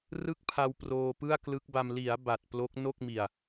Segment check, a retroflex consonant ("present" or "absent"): absent